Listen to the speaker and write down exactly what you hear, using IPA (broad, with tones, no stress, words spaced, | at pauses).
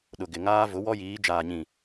ɗʊ˨ɡɪ˨ŋaː˦ vʊ˨˦wɔ˦jiː˨˦ d͡ʒaː˨ɲĩ˨